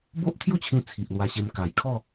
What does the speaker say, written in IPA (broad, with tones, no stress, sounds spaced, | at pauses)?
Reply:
b o˦ ʔ t̪ʰ j u˥˧ t͡ɕʰ ĩ˧ t͡sʰ i˨ ʔ l w a˧ ɕ e˧ m k a˨˩ j kʰ ɔ˥˧